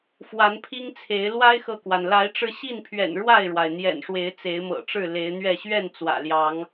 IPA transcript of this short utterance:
fwa˨˦npʰi˦ŋt͡sʰe˨˦ɪ̯ lwa˦ɪ̯xɤ˨kwa˩n la˨˦ɪ̯ʈ͡ʂɻ̩˧ɕi˥˨npʰɥɛ̰˨˩n ɻwa˥˨ɪ̯ɻwa˩ɪ̯ n̪jɛ̰˨˩nʂwe˨˦ɪ̯ t͡se˨˦ɪ̯mɤ̰˨˩ʈ͡ʂɻ̩˥˨ le˨˦ɪ̯n̪ɥɛ˥˨ ɕɥɛ˥˨n t͡swä̰˨˩ljɑ˨˦ŋ

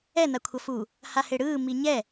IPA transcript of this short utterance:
ɛ nakʷʰʌfu | haheɽɯː miɲɛ

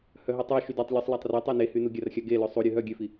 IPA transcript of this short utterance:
hœɦytˤuʃy dœtˤlʲusˤ latˤrøtˤœ nehynu ɡʲarxʲaɡe løsˤuɾʲø ɦœ ɡʲøfi

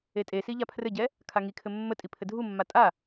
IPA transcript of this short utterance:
etʼesi ʎapʰrɘɟɛ | kʰaŋikʰɘ mːətʼi pʰɘdʱumːa tʼa

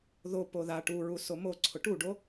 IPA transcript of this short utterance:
ðo poða ʈuɹu somoǀʰʊ ʈuɖo

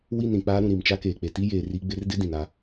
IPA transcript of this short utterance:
wi˦˨nɾĩ˨ k͡paː˦ ɾũ˨ ɾi˨mt͡ʃa˦keː˨ k͡pe˨ti˦jeː˨ ri˨˦ɡ͡bɪ˨˦rdɪ˦ dĩ˨na˦

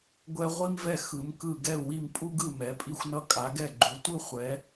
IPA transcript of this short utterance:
ɡʷɛ˧ ʁʷi˧mvɛ˧˩ xɯ˩˧mkɯ˧˩ ɡɛ˧˩u̯wi˧˩mpʼu˧ɡɯ˧˩ mɛ˩˧pʼi˧xʷnʌ˧ kʼa˩˧ɡɛ˧˩ɡ͡ǃu˩˧ tʷɯ˧ χʷɛ˩˧

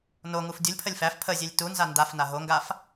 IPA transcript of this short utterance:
no ŋufdʲulʲpʰəlʲ fæf pʰəzʲelʲ tunza ndafna ɦoŋɡaf

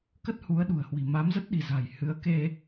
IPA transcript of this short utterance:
kə˦˥t̚ hu˨˦ə̯ɗṳ˨˩ə̯hwi̤˨˩ ma˨˦mzə˦˥t̚ɗi̤˨˩za̤˨˩j hɨ˨˦ə̯ke˧

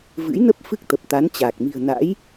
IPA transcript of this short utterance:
vɨ̰˧˥jnə˦˥p̚ fɨ˦˥k̚t̪ə˨˩p̚ t̪a˨˦nt͡ɕaː˨˩k̚ mi̤˨˩ə̯na̰˧˥j

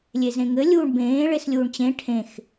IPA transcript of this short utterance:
lʲezẽŋɘ lʲuːɳbẽː ɭeslʲuːɳt͡ɕẽ ʈʰẽx

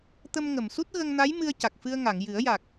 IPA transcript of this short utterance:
t̪ə˧mŋə˨˩˨msu˦˥t̚ ɣə˧ŋna˧˥j mɨ˧ə̯ca˨˩k̚fɨ˧ə̯ŋa˨˩˨ŋ jɨ˨˩˦ə̯ja˨˩k̚

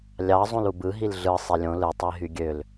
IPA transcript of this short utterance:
lʲɑ zˤũlubɯ ɦilɮɯ sˤelʲõ lɯ tˤiɦyɡʲøl

